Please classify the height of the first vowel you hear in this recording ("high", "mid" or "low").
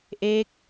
mid